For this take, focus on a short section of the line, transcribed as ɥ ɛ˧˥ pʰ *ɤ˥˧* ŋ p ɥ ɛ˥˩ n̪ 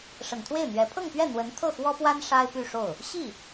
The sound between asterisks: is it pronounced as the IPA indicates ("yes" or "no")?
yes